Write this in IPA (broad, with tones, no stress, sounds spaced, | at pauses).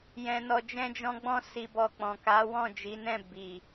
j ɛ̃˧ n ɔ˧ d͡ʒ ɛ̃˦ d͡ʒ ɔ̃˦ ɡ͡b ɔ̃˦ s i˧ b ɔ˧ k͡p ɔ̃˨ k a˨˦ w ɔ̃˦˨ d͡ʒ i˨˦ n ɛ̃˦˨ b i˨